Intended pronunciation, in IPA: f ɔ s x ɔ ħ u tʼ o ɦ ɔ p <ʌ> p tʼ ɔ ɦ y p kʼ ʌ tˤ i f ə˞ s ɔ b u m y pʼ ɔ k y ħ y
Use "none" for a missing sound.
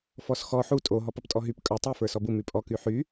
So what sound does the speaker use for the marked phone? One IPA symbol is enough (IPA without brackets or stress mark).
ʌ